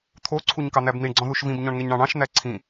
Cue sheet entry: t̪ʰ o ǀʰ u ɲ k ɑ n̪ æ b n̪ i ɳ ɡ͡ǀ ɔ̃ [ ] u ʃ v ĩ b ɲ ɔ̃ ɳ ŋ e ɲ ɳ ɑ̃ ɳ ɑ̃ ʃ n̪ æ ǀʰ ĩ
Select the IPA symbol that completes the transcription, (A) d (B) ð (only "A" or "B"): B